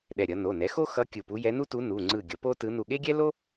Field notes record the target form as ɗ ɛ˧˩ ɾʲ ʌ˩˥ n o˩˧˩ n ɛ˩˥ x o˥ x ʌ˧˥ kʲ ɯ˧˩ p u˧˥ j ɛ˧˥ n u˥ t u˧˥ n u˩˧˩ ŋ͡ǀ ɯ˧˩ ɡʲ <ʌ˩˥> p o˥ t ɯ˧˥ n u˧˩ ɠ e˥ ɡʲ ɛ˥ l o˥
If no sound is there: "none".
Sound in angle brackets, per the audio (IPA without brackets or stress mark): ʌ˩˥